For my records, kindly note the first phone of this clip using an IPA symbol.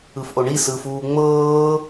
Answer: ɯ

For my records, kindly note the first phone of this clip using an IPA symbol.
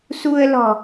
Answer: s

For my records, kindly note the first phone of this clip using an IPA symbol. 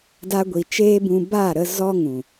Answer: d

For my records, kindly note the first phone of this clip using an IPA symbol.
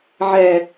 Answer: ʕ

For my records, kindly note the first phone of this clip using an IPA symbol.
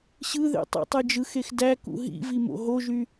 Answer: ɕ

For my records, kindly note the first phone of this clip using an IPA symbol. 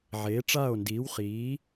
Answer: ʕ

